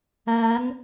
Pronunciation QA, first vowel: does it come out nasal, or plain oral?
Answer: oral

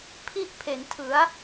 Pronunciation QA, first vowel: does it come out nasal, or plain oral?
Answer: oral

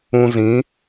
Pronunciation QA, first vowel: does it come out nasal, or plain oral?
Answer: nasal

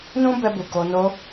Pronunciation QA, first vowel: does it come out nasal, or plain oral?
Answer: nasal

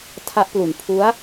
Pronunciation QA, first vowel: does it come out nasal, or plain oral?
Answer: oral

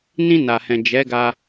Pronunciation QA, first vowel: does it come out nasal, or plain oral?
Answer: nasal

